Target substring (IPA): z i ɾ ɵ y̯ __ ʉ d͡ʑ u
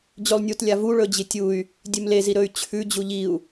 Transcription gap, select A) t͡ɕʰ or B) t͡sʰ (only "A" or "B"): A